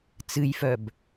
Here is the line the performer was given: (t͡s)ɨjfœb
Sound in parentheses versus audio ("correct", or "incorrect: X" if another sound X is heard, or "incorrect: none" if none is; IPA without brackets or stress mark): correct